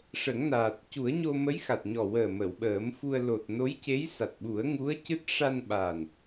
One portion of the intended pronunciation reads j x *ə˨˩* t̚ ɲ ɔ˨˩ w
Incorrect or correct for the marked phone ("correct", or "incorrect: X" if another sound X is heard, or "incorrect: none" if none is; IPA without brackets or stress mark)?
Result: incorrect: a˨˩